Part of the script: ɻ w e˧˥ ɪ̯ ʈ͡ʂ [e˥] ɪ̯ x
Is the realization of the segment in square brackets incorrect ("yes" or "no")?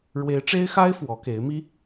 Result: no